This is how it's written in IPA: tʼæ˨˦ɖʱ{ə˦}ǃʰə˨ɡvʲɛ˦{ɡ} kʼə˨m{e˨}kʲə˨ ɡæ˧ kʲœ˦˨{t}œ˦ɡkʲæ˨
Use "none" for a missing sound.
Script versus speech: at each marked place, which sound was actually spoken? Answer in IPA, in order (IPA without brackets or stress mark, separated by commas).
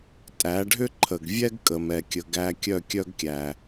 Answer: ʏ˦, ɡ, ɛ˨, kʲ